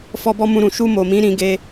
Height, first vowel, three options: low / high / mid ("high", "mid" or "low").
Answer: mid